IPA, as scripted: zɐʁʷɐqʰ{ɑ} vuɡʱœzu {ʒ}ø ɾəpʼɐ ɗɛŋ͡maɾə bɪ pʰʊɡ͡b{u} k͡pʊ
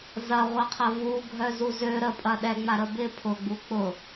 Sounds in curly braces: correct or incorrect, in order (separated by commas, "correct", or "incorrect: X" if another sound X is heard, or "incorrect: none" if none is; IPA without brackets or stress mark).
incorrect: ɐ, incorrect: z, correct